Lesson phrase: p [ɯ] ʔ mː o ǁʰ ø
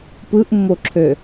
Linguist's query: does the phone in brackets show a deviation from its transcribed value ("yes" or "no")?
no